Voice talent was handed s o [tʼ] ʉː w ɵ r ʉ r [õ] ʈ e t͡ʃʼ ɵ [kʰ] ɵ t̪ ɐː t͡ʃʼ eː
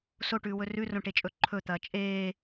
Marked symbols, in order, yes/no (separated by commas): no, yes, no